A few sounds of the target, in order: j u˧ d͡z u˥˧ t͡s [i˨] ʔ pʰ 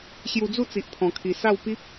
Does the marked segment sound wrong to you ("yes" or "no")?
no